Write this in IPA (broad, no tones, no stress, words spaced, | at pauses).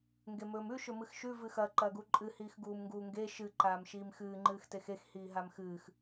ŋɡemɵːmʉ ʃɵmɨxʃʉ vɨxɐ ǃɐːɡuǃʼɨ hiːxɡuːmŋɡuːŋɡe ʃɨ ǃaːmʃiːmxɨː ŋ͡ǃɨːxtexex hiːɦamxɨːx